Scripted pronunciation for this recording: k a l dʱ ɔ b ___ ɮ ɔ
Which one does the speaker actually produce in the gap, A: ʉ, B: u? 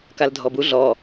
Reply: B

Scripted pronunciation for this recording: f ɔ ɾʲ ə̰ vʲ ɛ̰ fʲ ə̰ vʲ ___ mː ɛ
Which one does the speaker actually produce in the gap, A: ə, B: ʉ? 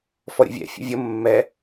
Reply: A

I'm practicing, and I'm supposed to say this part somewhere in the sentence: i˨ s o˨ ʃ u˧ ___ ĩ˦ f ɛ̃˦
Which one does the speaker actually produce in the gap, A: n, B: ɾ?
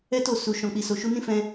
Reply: A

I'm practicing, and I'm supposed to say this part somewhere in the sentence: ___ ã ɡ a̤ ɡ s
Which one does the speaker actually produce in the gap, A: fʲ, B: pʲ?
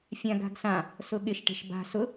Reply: A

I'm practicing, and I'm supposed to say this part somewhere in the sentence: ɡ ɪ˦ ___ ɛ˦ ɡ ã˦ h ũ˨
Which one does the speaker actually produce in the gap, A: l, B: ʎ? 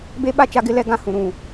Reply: A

